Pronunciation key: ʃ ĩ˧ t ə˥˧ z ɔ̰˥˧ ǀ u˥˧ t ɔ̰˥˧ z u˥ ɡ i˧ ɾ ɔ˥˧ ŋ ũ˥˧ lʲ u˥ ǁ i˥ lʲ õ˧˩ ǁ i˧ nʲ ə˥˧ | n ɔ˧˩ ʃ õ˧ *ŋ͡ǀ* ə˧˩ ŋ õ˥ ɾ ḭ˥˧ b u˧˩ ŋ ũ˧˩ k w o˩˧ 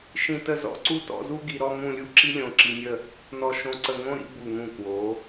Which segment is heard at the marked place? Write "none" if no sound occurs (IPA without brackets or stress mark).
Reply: ǀ